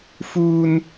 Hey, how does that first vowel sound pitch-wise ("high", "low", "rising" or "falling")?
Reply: high